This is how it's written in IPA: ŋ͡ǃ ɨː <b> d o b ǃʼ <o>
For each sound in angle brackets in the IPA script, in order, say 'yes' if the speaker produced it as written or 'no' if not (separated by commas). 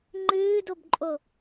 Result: no, yes